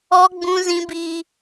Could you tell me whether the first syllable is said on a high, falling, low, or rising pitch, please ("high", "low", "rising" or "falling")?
high